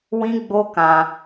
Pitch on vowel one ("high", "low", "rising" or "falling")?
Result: high